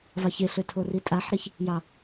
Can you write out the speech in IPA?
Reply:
vɑçeɬø tʰoritʼaħɾiç | jɑ

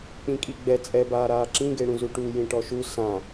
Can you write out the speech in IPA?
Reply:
k͡pĩkʼiɡ͡bɛ t͡sʼɛ baːɾaːǁĩ ɡeɽũzuʈu jĩʈɔʃu sã

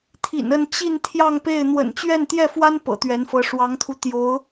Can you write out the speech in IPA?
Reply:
t̪ʰḭ˨˩nə˥˧n t͡ɕi˥˧n t̪ʰjɑ˥˧ŋpe˥˩ɪ̯ n̪wə̰˨˩nt͡ɕɥɛ˥˧nt̪jɛ˥˩fwa˥n pɤ̰˨˩t̪ɥɛ˧˥nfɤ˧˥ ʂwɑ˧˥ŋt̪ʰu˧ t̪jo˧˥ʊ̯

